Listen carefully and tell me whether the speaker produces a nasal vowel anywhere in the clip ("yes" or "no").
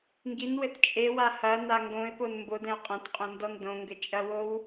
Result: yes